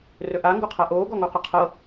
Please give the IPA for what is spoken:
rɵʔa ŋɡoqʰaʔoː ɡɔŋoqəqʰɤ

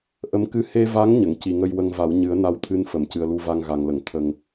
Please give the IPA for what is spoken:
ʔə˧˥mkɨ˧ he˧va˧˥ŋ ɲə˨˩˨ŋci˨˩ŋə˧j wə˧ŋva˨˩˦w ɲɨ˨˩˦ə̯na˧wt̪ʰɨ˧n fə˨˩˨mcɨ˨˩ə̯lu˧va˧ŋ ɣa˨˩ŋlə˨˩˨ŋ t̪ʰə˨˩ŋ

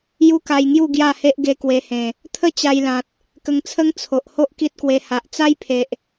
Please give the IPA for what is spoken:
ju˦ka˧jŋju˥˧ ɡja˥˧he˦ʔɡe˧ kwe˧hẽ˨˩ | t̪ʰə˥˧ t͡ɕa˧jlã˨t̚ | kə˧ŋt͡sʰə˦ŋ t͡sʰo˨ʔho˦ʔ ki˦t̚kwe˧ ha˨ʔt͡sa˦jpʰe˨ʔ

